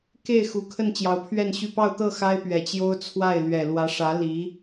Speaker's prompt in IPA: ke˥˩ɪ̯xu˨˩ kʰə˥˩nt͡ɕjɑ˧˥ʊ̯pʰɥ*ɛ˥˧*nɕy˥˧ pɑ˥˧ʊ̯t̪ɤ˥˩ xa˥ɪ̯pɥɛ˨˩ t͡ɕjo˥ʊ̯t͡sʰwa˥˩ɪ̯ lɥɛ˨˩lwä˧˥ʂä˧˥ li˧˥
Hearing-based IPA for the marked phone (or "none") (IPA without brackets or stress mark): ɛ˥˧